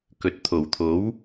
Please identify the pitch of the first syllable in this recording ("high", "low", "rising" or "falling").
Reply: rising